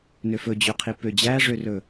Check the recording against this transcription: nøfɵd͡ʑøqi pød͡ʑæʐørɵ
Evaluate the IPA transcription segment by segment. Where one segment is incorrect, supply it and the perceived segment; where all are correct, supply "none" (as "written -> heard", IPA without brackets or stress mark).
q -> qʰ